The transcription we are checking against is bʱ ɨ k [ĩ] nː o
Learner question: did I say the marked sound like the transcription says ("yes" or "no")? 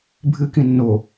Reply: yes